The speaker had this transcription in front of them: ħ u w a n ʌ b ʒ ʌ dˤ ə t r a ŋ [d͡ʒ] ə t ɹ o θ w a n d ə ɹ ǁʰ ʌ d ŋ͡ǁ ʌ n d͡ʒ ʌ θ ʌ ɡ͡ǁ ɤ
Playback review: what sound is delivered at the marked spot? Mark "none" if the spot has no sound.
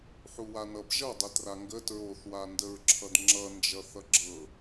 ɡ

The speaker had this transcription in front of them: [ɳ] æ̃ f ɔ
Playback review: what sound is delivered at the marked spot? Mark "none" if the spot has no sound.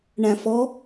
ɳ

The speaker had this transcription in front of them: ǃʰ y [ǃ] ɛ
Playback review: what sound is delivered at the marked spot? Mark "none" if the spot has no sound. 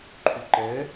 ǃ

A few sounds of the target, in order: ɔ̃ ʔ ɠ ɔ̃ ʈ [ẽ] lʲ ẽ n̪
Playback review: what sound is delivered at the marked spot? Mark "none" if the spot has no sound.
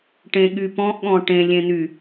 ẽ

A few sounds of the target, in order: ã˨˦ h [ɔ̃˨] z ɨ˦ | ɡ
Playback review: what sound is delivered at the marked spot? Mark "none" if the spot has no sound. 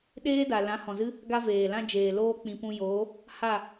ɔ̃˨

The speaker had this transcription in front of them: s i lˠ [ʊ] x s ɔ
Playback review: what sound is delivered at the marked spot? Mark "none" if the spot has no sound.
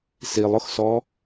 ʊ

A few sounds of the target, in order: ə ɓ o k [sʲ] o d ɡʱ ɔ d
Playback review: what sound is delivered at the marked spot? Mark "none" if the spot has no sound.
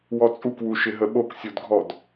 sʲ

